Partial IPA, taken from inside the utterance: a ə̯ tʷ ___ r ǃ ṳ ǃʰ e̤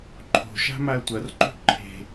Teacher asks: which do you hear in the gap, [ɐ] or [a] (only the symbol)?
ɐ